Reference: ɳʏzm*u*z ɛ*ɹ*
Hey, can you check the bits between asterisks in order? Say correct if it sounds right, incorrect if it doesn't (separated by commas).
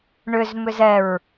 incorrect, correct